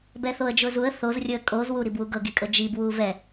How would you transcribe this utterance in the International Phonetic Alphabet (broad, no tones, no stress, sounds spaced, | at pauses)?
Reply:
b ɛ θ o ə̯ d͡ʒ ʊː z u ə̯ θ o z rʲ ʊ ə̯ kʼ o z w u ɾ i b w u ɡ ɤ ɡ i kʼ ɤ d͡ʒ i b w uː v ɛ